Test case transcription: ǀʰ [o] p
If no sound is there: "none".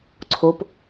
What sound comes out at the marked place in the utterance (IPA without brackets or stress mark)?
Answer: o